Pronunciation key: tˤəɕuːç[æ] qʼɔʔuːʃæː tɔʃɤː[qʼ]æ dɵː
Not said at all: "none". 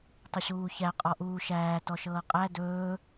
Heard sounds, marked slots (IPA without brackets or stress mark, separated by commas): æ, qʼ